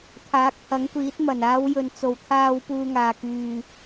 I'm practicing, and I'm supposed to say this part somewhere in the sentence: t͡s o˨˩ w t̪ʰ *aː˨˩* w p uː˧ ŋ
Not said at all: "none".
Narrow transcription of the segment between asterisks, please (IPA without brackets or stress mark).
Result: aː˧